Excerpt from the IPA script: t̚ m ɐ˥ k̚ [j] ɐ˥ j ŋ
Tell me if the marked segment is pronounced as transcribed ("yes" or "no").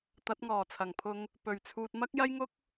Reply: yes